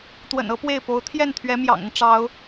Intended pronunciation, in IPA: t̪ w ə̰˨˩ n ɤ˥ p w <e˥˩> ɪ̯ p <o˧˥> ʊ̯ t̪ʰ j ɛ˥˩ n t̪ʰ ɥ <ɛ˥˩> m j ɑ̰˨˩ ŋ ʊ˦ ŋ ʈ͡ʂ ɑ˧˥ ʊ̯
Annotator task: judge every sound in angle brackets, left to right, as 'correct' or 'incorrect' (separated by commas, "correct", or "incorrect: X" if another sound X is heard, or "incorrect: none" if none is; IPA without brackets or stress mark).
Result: correct, correct, incorrect: ɛ˧˥